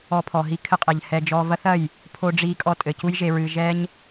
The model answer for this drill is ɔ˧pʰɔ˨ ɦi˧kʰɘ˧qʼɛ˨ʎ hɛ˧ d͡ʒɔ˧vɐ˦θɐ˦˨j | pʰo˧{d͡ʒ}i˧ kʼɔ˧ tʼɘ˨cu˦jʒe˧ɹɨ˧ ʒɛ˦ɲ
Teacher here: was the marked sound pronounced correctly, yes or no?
no